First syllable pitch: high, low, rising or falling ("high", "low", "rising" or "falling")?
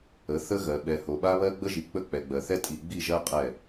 rising